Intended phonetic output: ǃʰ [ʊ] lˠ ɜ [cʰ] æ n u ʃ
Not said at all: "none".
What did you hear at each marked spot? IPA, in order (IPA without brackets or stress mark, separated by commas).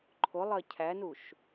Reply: ʊ, cʰ